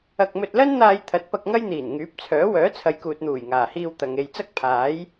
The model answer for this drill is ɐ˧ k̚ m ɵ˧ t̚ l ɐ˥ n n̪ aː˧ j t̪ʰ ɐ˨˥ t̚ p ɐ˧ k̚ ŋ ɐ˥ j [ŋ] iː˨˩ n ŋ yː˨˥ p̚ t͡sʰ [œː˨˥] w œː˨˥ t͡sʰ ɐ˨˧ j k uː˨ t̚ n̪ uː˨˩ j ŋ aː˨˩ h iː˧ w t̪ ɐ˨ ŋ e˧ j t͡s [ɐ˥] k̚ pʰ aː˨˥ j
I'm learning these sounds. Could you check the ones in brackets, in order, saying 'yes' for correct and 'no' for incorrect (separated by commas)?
no, yes, yes